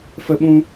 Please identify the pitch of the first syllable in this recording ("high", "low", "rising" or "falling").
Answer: high